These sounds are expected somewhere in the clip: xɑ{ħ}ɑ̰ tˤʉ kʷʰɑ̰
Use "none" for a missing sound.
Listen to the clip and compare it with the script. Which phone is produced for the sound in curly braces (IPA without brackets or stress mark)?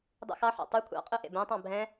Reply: ħ